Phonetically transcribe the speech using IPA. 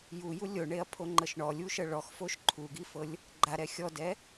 juju lʲoɳeɐ̯pʰoŋ͡ǃɤʃ ɳɔlʲuʃɤ ɭɔxfoʃ ǃʰuɡifɤlʲ | ɡ͡ǃaɾɛ xʲɔdɛ

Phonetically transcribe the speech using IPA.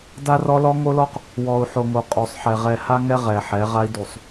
da˦rɔ˦ lɔ˦ŋo˦lɔ˦q | wɔ˨u̯ ħo˨ŋo˨ qʼo˨sˤħɛ˨ ʁɛ˨ha˦ŋɛ˦ ʁɛ˨ħɛ˨˦ʁa˦i̯ du˨sˤ

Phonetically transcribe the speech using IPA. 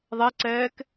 ðˤɛǀɛːk

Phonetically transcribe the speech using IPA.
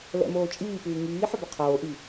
lɛ̰moːt͡ʃʼiːpɨː ŋiː ħʏbʏqʰoːʔi

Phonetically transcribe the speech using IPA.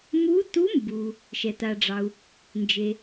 mu˧˥ tu˧˥mbu˩ | ʃɛ˩ta˩ɖ͡ʐɑ˩u̯ | nd͡ʒe˩

